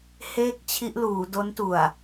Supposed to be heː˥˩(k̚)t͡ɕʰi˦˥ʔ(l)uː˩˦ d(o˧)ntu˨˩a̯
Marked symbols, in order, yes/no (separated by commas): yes, yes, no